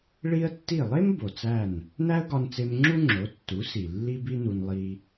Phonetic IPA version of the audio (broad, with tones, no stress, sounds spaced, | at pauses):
ɭ i˥ ə̯ tː i˥˩ lˠ e˥ m b o˩ t͡s æ˥˩ n | n æ˥ ə̯ ɡ ɒ˧ n t͡s e˧ m ŋ͡ǁ u˥ ŋ͡ǁ o˩˥ tː u˩˥ s i˩ lː i˥ b i˥ n u˧ n lˠ i˧